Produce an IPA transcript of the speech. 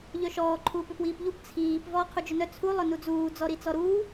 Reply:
ʎœʃɔː ǃʰuːpʏpwiːpʎup t͡sʰiːp vɔːqʰud͡ʒʏnœ t͡sʰu lˠœnud͡zuː d͡zɔɾit͡sɔɾuː

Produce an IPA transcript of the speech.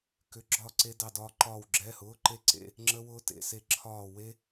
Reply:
kʏ˧˥˧ɡ͡ǁɒ˥˧ ǀe˥dɑ˥˧dɒː˥ǃɒː˥˧w ɡ͡ǁɛ˧˥˧hʊː˧˥˧ǃe˥˧ǀḛ˧˥˧ | ŋ͡ǁə˥wʊː˥ tḛ˧˥˧se˥˧ǁʰɒː˥˧ we˥

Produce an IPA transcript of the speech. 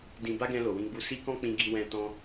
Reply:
dĩ˧ ba˦ɡɛ̃˧ lo˨wĩ˧ɡ͡bu˧ si˦kɔ̃˦ k͡pĩ˧ɡi˧wɛ̃˧ tɔ̃˦

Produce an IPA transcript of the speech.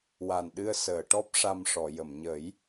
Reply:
wa˨˩nɗɨ˧ə̯səː˨˩˨ʈɔ˦˥p̚ ʂa˧mʂɔ˨˩˨jə˨˩˨m ɲə˨˩˦j

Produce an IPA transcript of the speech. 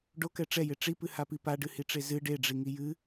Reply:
ɖokɛ ʈ͡ʂɛje ʈ͡ʂipɨhapi paɖɨhiʈ͡ʂe zɨ ɖeɖ͡ʐiŋi jɨ

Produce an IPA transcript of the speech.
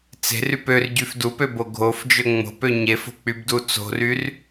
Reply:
t͡se̤ryp ørɟyf dupøbo ɡʱofd͡ʒø ŋ͡mo̤pø ɲefo̤k͡pybdu t͡so̤ryr

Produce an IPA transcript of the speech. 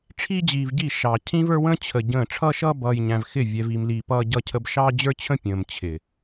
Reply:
ʈ͡ʂʰiː˦d͡ʑiː˨vɟi˦˨ ʃɑ˨ cʰĩ˦və˞˦wə̃ː˦ t͡ɕʰə˨ɟə̃ː˦˨ ʈ͡ʂʰʌː˦ʃʌː˦bʌː˨j ɲæ̃˨vxɪ˦˨ vʲɛ˨vi˨mliː˨ pʌː˦ɟʌ˦cʰə˦b ʃɑː˦d͡ʑə˞˦t͡ɕʰə̃˦ pʲə̃ː˨mt͡ɕʰɪ˨

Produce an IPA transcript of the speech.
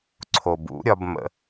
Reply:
ǀʰo˨bṵ˨˦ɾʲɒ˧b mə̰˧

